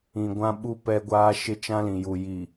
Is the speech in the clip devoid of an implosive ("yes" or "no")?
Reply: no